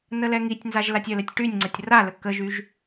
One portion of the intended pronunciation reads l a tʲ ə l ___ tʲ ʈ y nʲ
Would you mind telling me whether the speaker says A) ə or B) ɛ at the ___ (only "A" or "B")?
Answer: B